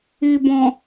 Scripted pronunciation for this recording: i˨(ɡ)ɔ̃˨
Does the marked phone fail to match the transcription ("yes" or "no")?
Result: yes